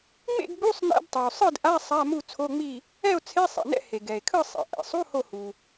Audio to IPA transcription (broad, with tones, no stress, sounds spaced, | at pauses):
ŋ͡m ḛ˥˨ ɡ ɡ͡b u˧˥˧ sˤ n ɛ̰˧˥˧ d tˤ i˩ o̯ sˤ ɯ˥˨ d ʔ a˧˥˧ sˤ a˧˥˧ m u˥˨ t͡sʰ o˧˥˧ ŋ͡m i˥˨ | ɛ˥˨ o̯ t͡sʰ e˧˥˧ sˤ ɛ̰˩ n ɛ̰˥˨ h e˩ ɡ ɛ˩ e̯ kʰ ɯ˥˨ sˤ ɛ̰˩ ʔ ɛ̰˩ sˤ u˧˥˧ h o˥˨ h u˩